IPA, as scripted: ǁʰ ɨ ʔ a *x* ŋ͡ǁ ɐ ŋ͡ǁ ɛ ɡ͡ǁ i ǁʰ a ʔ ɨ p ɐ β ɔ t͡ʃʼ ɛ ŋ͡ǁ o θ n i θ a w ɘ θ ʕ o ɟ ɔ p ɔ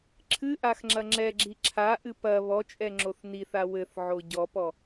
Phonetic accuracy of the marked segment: correct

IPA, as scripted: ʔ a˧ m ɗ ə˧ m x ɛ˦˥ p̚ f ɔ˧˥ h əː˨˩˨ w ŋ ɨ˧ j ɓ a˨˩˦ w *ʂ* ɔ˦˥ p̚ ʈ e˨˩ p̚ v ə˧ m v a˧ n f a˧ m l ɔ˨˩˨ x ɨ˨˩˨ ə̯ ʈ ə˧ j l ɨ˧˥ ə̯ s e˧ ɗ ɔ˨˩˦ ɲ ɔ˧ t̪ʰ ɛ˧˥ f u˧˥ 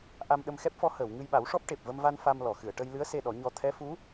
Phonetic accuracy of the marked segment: correct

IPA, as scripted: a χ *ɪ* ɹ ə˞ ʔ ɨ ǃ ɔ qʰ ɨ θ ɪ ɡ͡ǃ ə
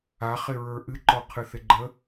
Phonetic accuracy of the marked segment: correct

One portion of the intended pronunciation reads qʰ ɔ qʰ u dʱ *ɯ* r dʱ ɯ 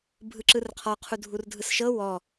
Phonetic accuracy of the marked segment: incorrect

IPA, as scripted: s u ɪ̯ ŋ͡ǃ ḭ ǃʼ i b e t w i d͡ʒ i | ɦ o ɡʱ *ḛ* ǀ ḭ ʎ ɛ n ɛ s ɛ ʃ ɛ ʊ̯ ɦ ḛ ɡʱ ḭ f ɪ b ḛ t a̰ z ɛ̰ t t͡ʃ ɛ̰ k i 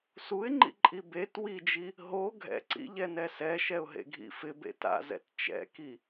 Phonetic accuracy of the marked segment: incorrect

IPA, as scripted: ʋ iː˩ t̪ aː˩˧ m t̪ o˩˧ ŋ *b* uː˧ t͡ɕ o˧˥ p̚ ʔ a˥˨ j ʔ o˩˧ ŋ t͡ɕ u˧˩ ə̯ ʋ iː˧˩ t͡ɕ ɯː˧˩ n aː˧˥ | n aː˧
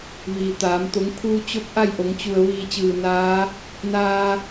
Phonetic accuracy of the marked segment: incorrect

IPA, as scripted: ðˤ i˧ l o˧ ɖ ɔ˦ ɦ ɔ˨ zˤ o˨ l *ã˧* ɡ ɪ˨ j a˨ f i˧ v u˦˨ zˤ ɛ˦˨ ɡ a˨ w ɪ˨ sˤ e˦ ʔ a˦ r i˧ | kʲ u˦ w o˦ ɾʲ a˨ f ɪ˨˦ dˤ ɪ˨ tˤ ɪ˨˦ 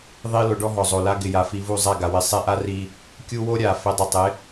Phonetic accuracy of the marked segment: incorrect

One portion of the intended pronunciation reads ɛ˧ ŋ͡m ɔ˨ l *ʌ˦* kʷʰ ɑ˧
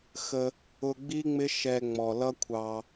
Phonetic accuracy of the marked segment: correct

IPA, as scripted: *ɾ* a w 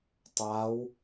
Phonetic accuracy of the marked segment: incorrect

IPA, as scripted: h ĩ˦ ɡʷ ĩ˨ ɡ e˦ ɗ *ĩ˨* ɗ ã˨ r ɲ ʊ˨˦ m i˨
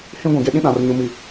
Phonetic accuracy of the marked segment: incorrect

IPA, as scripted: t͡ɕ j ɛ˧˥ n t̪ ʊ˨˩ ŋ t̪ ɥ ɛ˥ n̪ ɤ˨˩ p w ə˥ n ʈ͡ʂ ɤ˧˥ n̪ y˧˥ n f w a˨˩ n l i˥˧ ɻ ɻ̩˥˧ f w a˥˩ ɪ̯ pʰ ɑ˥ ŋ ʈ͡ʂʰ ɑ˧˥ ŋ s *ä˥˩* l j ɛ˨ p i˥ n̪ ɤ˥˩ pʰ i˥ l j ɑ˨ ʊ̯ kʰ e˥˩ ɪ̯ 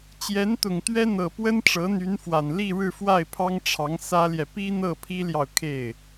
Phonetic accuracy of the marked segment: incorrect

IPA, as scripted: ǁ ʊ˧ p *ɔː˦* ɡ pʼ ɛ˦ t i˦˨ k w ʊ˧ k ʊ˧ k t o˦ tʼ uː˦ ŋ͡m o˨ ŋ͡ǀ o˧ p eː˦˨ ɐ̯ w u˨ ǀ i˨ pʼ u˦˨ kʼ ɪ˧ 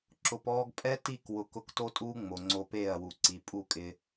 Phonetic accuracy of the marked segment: correct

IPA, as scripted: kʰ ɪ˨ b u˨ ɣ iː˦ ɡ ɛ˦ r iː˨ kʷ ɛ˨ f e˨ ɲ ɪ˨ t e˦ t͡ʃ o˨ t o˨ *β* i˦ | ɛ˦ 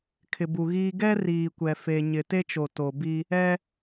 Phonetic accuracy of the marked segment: incorrect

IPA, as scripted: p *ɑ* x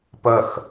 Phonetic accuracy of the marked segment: incorrect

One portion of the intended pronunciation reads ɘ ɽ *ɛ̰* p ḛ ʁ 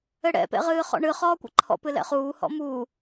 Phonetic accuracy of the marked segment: correct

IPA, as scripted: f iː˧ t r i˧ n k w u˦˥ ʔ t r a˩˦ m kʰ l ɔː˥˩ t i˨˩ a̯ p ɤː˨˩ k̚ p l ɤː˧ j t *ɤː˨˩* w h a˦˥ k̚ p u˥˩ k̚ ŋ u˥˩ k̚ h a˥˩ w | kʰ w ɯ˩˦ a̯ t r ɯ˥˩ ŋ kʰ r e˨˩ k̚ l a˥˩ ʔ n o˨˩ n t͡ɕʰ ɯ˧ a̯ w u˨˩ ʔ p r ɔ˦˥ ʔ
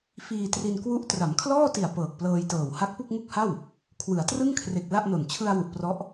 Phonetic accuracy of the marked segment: correct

